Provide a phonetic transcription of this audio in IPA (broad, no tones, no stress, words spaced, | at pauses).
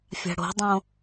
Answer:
fʲa̤ɽo̤dˤõ